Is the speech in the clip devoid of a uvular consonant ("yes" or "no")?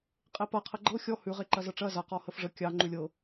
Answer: no